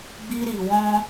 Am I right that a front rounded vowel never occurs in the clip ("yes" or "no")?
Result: yes